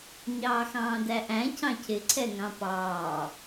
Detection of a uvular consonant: absent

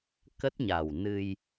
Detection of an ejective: absent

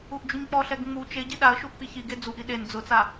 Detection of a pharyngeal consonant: absent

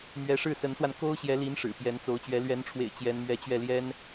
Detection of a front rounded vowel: absent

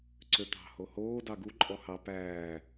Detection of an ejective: present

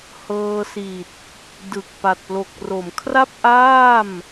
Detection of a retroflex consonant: absent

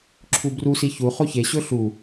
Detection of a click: present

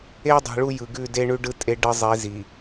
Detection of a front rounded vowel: absent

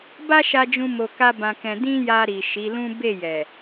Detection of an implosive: absent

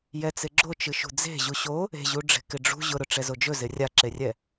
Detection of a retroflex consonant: present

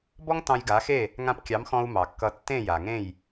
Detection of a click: absent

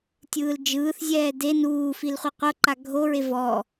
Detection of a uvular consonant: present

